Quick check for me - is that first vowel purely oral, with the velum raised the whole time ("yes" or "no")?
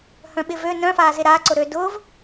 no